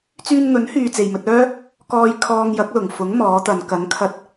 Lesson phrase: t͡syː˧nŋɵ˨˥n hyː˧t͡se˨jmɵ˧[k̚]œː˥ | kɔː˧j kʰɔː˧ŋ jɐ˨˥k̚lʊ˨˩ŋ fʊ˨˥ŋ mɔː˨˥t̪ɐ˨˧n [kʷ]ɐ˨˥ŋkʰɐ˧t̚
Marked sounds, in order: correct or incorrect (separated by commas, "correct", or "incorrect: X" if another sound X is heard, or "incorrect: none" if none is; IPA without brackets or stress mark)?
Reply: incorrect: t̚, incorrect: k